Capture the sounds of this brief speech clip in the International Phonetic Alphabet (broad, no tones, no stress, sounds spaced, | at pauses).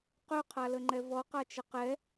q œ qʰ a l ə ŋ͡ǃ ɛ v ɔ q a t͡ʃ ə q ɛ